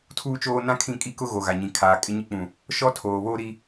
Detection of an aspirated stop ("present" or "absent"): present